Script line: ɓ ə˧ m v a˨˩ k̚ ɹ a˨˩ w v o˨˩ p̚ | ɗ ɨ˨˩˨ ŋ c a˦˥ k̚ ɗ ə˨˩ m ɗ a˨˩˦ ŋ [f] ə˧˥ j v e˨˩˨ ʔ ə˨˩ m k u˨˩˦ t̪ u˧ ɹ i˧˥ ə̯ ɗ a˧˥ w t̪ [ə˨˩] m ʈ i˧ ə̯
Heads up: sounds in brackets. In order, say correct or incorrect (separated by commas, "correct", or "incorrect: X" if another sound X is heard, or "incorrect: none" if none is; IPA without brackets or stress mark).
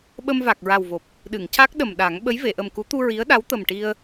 incorrect: ɓ, correct